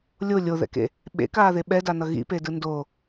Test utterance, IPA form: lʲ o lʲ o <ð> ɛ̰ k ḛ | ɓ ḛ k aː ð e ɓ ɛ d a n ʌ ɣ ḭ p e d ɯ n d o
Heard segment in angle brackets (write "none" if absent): ð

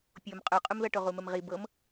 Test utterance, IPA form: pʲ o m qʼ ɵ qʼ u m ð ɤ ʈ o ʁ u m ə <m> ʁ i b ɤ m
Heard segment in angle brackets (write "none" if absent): m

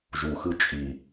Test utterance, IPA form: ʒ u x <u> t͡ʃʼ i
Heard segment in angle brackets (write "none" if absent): ɯ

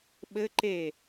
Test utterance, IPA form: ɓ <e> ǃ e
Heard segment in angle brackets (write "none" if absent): ɘ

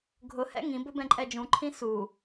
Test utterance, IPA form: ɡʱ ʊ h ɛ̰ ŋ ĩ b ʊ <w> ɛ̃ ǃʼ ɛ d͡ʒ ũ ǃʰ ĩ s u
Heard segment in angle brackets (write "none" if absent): b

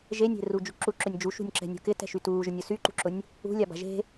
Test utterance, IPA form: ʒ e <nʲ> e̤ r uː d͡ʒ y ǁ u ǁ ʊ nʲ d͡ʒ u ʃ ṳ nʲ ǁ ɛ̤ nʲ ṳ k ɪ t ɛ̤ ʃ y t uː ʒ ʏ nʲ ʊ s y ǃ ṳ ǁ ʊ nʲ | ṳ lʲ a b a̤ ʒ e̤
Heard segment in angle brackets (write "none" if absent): nʲ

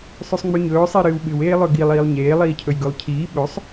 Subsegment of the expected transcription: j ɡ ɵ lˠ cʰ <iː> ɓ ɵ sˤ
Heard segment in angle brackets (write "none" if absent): iː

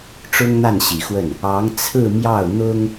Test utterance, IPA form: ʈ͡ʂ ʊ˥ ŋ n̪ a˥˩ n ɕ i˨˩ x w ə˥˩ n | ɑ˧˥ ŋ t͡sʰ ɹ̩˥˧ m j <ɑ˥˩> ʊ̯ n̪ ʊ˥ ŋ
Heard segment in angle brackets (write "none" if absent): ɑ˥˩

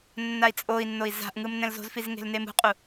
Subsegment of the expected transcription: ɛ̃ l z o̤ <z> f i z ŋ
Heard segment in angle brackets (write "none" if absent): z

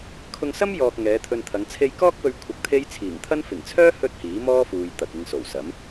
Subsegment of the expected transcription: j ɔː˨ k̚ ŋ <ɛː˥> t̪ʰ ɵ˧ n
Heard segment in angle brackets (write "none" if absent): ɛː˨˧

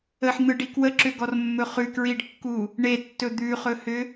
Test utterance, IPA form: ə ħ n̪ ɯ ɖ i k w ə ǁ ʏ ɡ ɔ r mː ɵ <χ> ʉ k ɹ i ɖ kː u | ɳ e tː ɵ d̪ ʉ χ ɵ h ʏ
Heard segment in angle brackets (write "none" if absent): χ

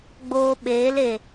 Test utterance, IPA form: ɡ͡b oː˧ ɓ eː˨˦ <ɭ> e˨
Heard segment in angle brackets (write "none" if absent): l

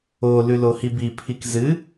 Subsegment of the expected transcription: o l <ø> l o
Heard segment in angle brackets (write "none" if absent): ʉ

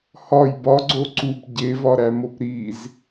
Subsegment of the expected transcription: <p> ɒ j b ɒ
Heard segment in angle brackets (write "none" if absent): h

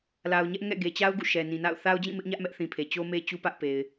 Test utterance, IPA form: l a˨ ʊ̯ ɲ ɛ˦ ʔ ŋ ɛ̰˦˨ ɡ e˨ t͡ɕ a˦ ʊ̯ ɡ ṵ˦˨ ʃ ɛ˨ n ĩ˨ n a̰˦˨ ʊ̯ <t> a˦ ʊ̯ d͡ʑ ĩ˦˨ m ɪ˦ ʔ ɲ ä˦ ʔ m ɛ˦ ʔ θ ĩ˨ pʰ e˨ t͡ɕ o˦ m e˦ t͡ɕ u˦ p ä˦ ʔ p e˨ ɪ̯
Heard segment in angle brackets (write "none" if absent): θ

